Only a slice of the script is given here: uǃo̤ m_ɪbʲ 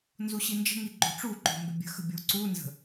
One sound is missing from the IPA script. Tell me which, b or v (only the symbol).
b